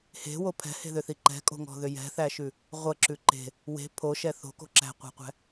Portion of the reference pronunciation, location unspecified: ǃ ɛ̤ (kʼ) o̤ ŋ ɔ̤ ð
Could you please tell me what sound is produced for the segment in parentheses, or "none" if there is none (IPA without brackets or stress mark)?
kʼ